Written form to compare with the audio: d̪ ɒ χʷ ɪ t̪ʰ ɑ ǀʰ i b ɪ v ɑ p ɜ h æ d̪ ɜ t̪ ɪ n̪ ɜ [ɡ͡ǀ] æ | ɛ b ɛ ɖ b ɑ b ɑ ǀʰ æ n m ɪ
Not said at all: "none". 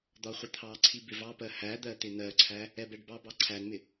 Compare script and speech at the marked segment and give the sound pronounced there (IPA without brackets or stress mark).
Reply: ǀʰ